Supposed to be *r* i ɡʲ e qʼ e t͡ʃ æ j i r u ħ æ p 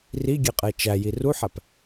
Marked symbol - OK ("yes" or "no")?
yes